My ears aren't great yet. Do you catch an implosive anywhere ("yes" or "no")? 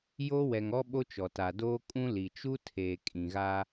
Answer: yes